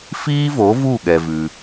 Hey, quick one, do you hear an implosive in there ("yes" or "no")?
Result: yes